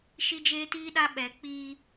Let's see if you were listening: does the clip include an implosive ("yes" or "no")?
yes